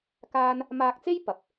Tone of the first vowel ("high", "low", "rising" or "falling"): high